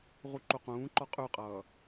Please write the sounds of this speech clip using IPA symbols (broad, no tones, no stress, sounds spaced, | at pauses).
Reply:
ʁ u ǃ u q ũː ǃ ɔ qʼ ʉ qʼ ʌː